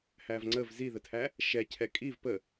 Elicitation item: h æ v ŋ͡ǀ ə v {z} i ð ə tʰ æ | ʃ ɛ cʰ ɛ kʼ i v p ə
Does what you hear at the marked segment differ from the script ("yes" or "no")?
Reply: no